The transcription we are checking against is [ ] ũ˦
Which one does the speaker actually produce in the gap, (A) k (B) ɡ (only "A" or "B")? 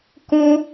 A